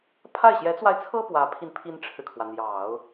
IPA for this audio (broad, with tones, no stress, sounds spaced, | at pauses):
pʰ a˥˩ ɪ̯ ɕ j ɛ˧˥ t͡s w a˧ ɪ̯ t͡sʰ ɤ˥ p w ä˧˥ pʰ i˧ n pʰ i˥ n ʈ͡ʂʰ ɻ̩˨ kʰ w ä˩ n̪ j ɑ˨˩˦ ʊ̯